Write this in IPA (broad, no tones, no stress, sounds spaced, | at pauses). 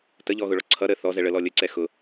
t ə ʎ ɔ ɣ ʊ ɭ ɔ ǀʰ ʌ ɾ ə θ ɔ z ɛ ɭ ə l ɔ lʲ ə ǀ ɛ x ʊ